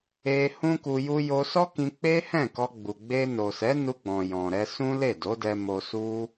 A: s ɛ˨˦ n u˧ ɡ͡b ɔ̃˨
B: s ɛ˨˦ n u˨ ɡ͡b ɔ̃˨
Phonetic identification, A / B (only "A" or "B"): A